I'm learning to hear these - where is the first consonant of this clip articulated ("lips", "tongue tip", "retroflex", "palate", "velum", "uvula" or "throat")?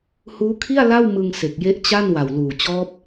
throat